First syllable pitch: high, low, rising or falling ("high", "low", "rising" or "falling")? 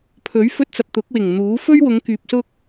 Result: rising